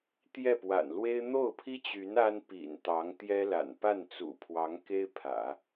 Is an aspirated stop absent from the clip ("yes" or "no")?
no